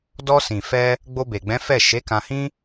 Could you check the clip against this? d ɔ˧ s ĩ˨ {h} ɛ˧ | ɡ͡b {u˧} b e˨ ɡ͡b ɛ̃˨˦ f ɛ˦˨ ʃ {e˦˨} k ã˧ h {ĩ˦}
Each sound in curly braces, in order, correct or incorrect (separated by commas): incorrect, incorrect, incorrect, correct